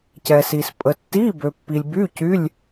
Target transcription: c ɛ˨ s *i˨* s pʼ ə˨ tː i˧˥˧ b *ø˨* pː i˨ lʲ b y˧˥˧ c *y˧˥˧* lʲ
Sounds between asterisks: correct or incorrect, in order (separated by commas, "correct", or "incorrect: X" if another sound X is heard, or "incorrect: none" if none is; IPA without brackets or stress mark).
correct, correct, correct